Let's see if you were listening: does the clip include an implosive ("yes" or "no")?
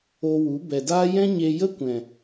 no